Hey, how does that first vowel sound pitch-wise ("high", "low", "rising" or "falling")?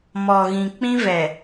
low